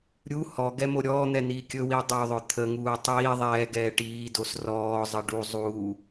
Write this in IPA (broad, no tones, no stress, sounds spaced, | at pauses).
ɾʲ u h ɔ ɡ ɛ m o ɾʲ ɔː n̪ ɛ n̪ iː kʲ ɵ w i ɐ̯ dˤ o ðˤ ɵ t̪ʰ ə ŋ uː tˤ iː ðˤ ɛː ɡ ɛː ʈ iː d o s r ɔː zˤ ə ɖ u zˤ uː